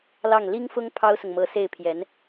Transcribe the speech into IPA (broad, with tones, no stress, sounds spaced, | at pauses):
l ɑ˥˩ ŋ l i˥ ŋ f ʊ˥ ŋ pʰ ɑ˥ ʊ̯ s ʊ˨ ŋ m ɤ˧˥ s e˥˩ ɪ̯ pʰ j ɛ˧˥ n